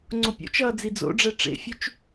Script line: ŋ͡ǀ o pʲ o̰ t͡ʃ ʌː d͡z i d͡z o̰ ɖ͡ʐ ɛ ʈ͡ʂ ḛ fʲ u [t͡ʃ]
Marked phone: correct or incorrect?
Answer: correct